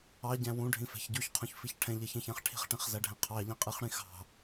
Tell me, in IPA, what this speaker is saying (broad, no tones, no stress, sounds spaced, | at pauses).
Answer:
ɑ ɟ æ̃ w ũ ɖʱ ĩ f ɛ̤ ç ɟ u ç qʰ ũ ç f i ç ʈʰ ɛ̃ ʎ ɛ ç ɛ̃ ç æ̃ χ ʈʰ i̤ χ ʈ ĩ χ z æ ɖʱ ɛ̃ qʰ ɑ ʎ ĩ qʼ i χ ɽ ĩ x ɑ̤